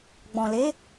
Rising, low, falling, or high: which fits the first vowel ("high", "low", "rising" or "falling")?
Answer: low